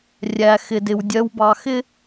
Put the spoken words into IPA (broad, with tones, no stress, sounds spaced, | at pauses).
rʲ æ˨ x ɪ˨ d ɪ˨ w dʲ ɜ˨ w b ɑ˨ x ɪ˦